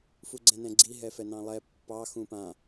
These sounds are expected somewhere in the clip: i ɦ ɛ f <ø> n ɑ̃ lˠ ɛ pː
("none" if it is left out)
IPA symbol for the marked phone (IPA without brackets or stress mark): ɛ